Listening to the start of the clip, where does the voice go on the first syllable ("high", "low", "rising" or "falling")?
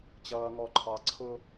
low